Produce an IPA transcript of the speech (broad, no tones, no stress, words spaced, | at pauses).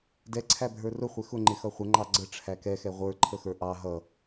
dɛǀʰæbʱə˞ rʊχʷɛ xʊŋ͡ǃɪxʌ χʷəŋ͡ǃɑ ɡ͡ǀəʈ͡ʂʰæ kɛxɛ ʁʷə˞ǃʰəxə˞ ʔɑ ɦʌ